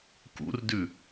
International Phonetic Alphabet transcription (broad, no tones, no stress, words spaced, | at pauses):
kṵrdʉ